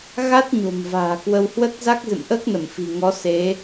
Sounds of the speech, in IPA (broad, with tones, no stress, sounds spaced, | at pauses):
ɣ a˦˥ t̚ ɲ o̤˨˩ m v a̤ː˨˩ k w ə˧ w h w ə˦˥ t̚ z a˦˥ k̚ z ɨ̰˧˨ m ʔ əː˦˥ k̚ n ə˧˩ m f i̤˨˩ ŋ ɔ˨˦ s e˨˦